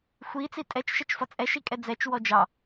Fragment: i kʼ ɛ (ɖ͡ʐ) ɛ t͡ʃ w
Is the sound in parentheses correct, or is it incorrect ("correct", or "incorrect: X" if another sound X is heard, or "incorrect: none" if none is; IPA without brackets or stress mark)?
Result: incorrect: d͡z